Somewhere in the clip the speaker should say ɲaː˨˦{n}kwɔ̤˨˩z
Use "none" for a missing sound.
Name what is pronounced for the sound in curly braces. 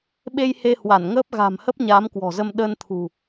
m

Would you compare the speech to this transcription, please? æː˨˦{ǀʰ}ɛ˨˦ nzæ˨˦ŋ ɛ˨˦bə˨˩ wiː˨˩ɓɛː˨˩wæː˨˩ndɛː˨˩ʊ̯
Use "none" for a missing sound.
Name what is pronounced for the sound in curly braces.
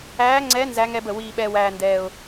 ŋ͡ǀ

